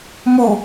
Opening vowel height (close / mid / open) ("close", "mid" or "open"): close